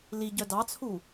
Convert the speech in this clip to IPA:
liɟœ dɑt͡sʰu

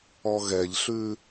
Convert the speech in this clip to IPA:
ɔɣɛʎɬʉ

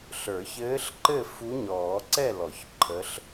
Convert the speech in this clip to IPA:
ɬə˞˨˩˦çɘː˧˥ɬǃɘ˥˨ fu˧˥ɲɔː˨˩˦ ǀɛ˥˨lɔ˨˩˦ç ǃʰə˧˥ɬ

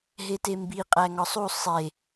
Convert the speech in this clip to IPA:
ɦetembi qʼæŋɒsˤu sˤe

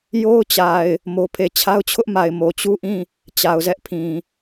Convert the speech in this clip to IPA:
jo˦ʊ̯t͡ɕa˨ɪ̯ | mo˦pʰe˦˨ t͡ɕʰa˦ʊ̯t͡ɕʰʊ˦ʔma˨ɪ̯ mo˨t͡ɕu˦ʔĩ˦˨ | t͡ɕa˨ʊ̯zɛ˦ʔpʰĩ˨

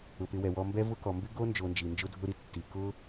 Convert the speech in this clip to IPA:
ʊ˩pɪ˨wɛ˩wɔ˨ mbɛ˥vʊ˥kɔ˩ mbɪ˥ɡo˥nd͡ʒo˨nd͡ʒi˩ nd͡ʒʊ˦dʱʊ˦ɾi˦ tːi˩ kʊ˦

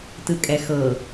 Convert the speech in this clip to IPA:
tɯkʼɛxɤ

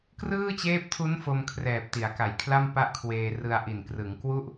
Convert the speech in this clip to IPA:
krɯː˥˩t͡ɕeː˦˥p̚tʰu˦˥n fo˧mkʰrɛː˨˩p̚ ti˩˦a̯ka˨˩jkʰla˥˩m pa˥˩ʔkʰweː˧ rɯ˧a̯ʔi˨˩n krɯ˩˦ŋkwu˥˩ʔ

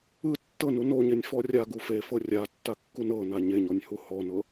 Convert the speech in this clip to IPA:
ɯ tːɤnu noɲenʲfɔ rʲaɡu fefɤ rʲatːakːun ɤna ɲeɲɔnʲhu hɔnɤ

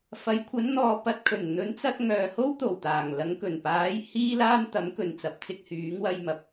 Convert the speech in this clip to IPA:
fɐ˨˥jkʷʰɐ˨˥nn̪ɔː˨˧ pɐ˨t̚kʰɵ˨˩n n̪ɵ˨˥nt͡sɐ˧t̚ ŋœː˨ho˥wt̪o˨˩wt̪aː˨˩ŋ lɐ˨˧ŋkɵ˨˩npaː˨˥j hiː˥laː˥n t̪ɐ˨˥mkɵ˨nt͡sɐ˨p̚t͡sɪ˧k̚ hyː˨˥ŋwɐ˧jmɐ˨˥p̚

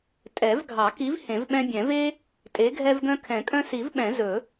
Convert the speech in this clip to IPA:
tʼɛ˨˩˦vɡʱɑ˨˩˦ki˨˥v hẽ˨˩˦vɓɛ̃˦bʲɛ̃˨˩˦ ve˦ | tʼe˨˥ɡʱɛ˦vɡœ̃˦ kʰɛ̃˨˩˦kʼœ̃˦si˨˩˦vɓɛ̃˨˩˦ zɵ˨˩˦

